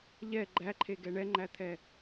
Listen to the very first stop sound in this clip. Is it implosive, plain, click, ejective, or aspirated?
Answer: click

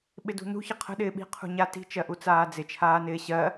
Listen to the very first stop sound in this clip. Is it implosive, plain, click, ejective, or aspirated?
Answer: implosive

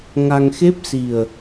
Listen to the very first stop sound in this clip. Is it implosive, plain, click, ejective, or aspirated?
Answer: plain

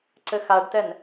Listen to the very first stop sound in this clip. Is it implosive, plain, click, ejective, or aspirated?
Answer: click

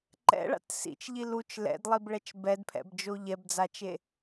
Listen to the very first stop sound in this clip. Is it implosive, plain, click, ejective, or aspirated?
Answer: click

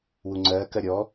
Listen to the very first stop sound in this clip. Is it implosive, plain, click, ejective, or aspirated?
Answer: click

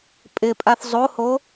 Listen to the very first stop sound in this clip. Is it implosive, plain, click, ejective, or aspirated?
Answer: ejective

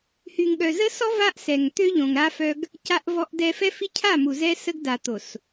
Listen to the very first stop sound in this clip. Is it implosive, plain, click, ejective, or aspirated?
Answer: implosive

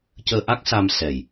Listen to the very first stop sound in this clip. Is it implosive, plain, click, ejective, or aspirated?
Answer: plain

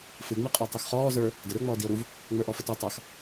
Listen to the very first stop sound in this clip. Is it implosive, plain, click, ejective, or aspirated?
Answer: ejective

